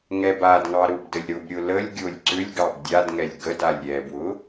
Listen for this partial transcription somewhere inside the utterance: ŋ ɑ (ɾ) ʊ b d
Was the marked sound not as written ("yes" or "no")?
no